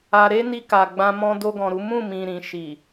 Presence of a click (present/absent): absent